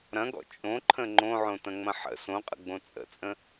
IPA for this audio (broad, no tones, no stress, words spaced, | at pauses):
ɾɐ̃ɡɔ̰ t͡ʃʼõǃʰə̃ ŋ͡ǃõʕõtɐ̃ŋ͡mɐ̃ ħə̰ sõqʼə̰ɡ͡bõ t͡sʼə̰t͡sʼə̃